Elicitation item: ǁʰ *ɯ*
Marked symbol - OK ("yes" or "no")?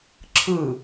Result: yes